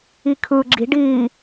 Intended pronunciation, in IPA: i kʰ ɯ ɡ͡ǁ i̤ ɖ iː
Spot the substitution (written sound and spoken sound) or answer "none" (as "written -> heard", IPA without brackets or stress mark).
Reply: none